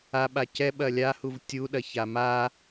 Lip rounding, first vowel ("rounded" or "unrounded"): unrounded